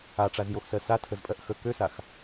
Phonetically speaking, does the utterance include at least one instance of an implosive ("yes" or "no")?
no